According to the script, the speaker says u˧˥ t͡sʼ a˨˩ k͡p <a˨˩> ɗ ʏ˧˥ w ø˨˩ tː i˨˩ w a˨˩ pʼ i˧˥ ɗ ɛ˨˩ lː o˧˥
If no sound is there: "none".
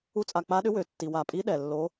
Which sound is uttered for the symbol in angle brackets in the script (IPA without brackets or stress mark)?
a˧˥